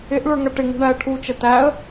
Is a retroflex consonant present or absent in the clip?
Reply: present